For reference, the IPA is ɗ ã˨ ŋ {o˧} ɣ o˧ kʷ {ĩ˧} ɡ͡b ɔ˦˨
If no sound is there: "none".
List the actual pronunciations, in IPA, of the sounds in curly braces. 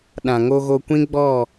o˧, ĩ˦

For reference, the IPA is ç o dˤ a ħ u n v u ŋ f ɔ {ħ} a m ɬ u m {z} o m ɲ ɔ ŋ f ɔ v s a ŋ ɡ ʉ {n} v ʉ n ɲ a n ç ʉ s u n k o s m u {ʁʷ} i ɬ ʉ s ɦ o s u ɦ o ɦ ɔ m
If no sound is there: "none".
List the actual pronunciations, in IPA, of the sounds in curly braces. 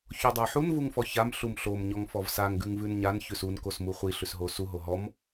ç, ɬ, ŋ, χʷ

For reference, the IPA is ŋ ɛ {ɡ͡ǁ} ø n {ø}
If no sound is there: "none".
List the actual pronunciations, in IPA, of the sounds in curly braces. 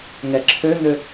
ǁʰ, ø

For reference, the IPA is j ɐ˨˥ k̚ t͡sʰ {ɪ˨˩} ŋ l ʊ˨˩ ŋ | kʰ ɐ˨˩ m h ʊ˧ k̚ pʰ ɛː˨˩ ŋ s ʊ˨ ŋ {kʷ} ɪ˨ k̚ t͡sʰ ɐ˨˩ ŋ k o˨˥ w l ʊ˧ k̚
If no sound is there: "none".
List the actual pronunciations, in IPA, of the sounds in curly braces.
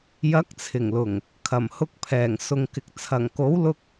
ɪ˨˩, k

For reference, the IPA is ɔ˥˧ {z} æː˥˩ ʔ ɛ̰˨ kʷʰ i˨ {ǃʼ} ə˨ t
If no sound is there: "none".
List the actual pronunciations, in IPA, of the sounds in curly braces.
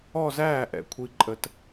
z, ǃʼ

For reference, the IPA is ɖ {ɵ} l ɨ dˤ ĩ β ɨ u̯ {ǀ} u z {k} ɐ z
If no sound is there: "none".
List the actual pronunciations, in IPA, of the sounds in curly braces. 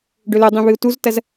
ɵ, t, t

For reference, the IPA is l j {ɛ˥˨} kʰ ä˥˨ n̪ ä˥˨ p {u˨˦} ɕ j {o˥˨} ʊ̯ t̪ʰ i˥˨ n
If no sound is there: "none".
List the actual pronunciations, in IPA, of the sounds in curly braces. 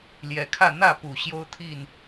ɛ˨˦, u˨˩, o˦

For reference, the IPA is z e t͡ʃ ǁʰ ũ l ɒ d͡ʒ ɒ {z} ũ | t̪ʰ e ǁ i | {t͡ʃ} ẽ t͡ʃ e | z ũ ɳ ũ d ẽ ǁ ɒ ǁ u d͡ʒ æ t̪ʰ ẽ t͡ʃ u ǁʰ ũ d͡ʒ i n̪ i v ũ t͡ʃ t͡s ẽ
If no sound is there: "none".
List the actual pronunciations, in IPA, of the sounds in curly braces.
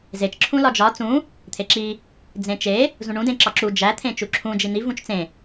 t͡s, d͡z

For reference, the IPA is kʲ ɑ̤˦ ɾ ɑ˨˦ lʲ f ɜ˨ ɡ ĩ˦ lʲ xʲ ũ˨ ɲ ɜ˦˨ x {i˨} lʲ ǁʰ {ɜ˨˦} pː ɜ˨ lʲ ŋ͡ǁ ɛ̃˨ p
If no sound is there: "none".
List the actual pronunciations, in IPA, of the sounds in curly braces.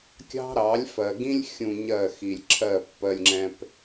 i˨, ɜ˦˨

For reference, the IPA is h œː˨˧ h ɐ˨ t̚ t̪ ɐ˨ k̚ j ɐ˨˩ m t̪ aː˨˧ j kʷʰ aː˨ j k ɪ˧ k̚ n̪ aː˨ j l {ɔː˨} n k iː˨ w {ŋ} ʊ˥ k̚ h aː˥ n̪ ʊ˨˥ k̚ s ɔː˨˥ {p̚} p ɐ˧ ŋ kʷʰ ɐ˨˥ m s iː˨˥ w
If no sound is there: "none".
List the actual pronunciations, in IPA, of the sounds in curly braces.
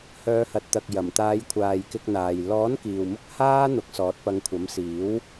ɔː˨˥, m, t̚

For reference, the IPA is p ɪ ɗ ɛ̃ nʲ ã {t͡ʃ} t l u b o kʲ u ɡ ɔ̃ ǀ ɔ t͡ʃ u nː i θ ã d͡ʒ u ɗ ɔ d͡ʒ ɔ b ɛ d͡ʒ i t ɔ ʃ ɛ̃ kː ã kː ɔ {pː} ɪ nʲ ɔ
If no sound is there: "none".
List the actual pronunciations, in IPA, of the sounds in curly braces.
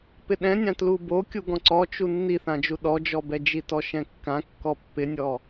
none, pː

